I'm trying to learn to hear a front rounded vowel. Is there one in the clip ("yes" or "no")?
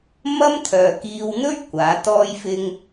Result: yes